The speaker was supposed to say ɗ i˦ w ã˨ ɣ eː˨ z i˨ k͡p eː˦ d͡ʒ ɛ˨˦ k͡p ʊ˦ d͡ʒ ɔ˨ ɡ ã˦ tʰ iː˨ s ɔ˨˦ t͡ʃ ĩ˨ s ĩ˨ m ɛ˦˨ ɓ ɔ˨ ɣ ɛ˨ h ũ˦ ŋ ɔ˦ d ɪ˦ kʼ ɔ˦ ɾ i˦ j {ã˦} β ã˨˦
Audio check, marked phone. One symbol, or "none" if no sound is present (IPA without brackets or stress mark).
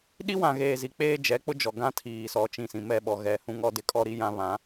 ã˦